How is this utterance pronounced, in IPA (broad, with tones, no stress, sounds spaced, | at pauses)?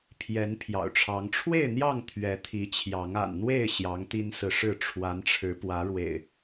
pʰ j ɛ˨˦ n pʰ j ɑ̰˨˩ ʊ̯ ʈ͡ʂʰ ɑ˨˦ ŋ ʈ͡ʂʰ w e˥˨ ɪ̯ n̪ j ɑ˥˨ ŋ t̪ʰ ɥ ɛ˨˦ t̪ʰ i˨˦ t͡ɕʰ j ɑ˨˦ ŋ a̰˨˩ n n̪ w e˥˨ ɪ̯ ɕ j ɑ˨˦ ŋ t̪ i˦ n s ɹ̩˨ ʂ ɻ̩˥˨ ʈ͡ʂʰ w a˨˦ n ʈ͡ʂʰ ɻ̩˨˦ p w ä˨˦ ɻ w ḛ˨˩ ɪ̯